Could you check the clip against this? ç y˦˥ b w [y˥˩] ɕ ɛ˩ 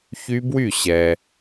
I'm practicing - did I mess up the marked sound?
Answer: no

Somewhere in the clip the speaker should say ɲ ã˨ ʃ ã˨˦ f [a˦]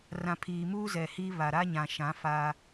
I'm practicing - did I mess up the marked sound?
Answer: no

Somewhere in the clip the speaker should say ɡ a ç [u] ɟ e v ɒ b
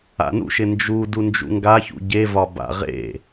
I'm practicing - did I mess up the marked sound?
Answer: yes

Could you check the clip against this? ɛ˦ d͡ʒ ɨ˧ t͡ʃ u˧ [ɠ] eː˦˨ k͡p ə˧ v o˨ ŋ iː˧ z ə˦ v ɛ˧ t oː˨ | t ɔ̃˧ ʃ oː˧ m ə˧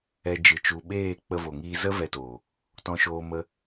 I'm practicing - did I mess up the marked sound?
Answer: yes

